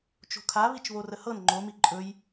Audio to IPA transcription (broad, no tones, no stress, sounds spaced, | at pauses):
t͡ʃ o̤ kʰ a β i t͡ʃ β o r ə h ɤ n ŋ͡ǃ o m i ǃʼ ɵ j